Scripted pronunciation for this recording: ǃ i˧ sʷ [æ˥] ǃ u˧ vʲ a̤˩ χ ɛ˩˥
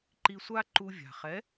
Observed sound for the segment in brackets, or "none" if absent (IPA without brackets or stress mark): a˥